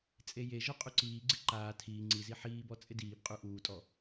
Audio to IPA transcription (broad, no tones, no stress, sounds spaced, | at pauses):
t͡sʼ e j e ʒ ʊ qʼ u ǀ iː ɡ͡ǀ ɪ ǃ aː tʰ iː ŋ͡ǀ i z i ħ iː b ɔ t͡sʼ ɪ d iː b qʼ u ʔ uː tʼ ɔ